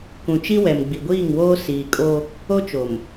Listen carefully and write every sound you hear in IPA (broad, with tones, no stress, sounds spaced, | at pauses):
k ũ˨ t͡ʃ i˦ w ɛ˨ m ɡ͡b i˨ ɡʷ iː˦˨ ŋ w oː˦ s iː˨ kʼ o˦ | o˦ t͡ʃ o˨ m